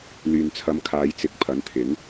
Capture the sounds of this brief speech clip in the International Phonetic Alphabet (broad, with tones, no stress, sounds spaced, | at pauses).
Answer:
l yː˨ n t͡sʰ ɐ˨˧ m kʰ aː˨˧ j t͡s ɪ˨˥ k̚ pʰ ɐ˨˥ n t̪ʰ ɪ˨˥ ŋ